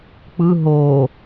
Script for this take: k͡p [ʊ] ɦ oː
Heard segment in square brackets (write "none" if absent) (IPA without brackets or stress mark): ɯ